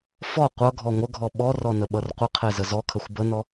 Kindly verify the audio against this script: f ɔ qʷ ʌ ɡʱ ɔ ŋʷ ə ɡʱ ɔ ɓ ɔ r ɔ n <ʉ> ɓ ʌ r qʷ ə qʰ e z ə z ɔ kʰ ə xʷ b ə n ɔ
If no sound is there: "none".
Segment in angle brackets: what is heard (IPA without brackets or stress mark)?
ə